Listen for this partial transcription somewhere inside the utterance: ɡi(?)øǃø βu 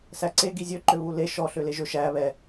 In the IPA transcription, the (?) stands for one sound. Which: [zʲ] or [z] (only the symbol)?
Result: zʲ